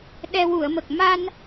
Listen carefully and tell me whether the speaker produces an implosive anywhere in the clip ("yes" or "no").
yes